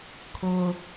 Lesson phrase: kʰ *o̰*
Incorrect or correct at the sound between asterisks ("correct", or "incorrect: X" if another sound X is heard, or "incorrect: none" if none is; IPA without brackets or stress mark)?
incorrect: o